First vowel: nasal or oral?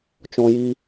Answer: nasal